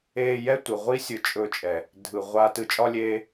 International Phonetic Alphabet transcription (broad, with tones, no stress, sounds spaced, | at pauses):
eː˧ j ɛ˦ tʷ ɯ˨ ʁʷ i˦ sʲ ɯ˧ t͡ʃʼ ɵ˧ t͡ʃʼ ɛ˨ | dʱ ɯ˨ ʁʷ a˦ t ɯ˧ t͡ʃʼ ɒ˦ lʲ eː˦